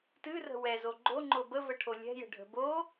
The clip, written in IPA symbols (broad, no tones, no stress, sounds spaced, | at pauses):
t ɨ r ə̤ w ɛ z o ɡ͡ǃ o ŋ͡ǃ o b ə v ə ʈʰ o lʲ ɛ̤ j ə̤ ɖʱ ə̤ b o